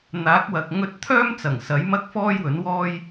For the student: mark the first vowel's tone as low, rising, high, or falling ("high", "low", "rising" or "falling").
rising